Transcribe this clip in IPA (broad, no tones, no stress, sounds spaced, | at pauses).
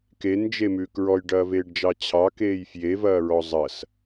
k e n d͡ʒ e m ʉ k ɹ ɔ j ɖ ɐː v eː ɖ d͡ʒ ɑ t͡ɕʰ ɑ k eː j f j e v ɐː ɹ ɔ zˤ ɐ s